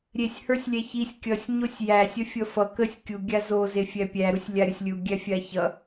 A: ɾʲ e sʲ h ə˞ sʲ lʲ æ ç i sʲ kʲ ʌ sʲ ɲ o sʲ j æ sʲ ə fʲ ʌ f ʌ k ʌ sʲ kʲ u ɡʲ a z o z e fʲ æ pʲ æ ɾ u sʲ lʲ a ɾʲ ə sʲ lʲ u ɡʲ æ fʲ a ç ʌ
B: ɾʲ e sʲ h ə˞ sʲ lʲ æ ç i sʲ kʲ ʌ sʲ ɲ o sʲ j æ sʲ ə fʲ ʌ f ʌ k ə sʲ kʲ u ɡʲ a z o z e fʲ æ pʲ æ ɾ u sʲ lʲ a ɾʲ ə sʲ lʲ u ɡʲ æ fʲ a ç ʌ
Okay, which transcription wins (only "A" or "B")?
B